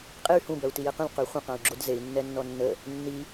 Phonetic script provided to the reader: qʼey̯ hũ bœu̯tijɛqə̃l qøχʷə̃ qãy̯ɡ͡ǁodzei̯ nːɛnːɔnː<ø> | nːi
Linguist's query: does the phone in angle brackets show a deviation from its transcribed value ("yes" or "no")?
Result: yes